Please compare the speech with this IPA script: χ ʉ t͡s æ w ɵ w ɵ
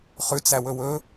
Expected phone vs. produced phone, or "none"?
none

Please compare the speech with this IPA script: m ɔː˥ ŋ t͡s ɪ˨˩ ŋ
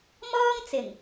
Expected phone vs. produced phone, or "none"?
none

